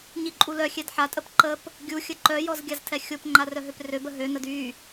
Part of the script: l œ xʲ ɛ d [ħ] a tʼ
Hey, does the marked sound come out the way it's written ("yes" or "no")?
yes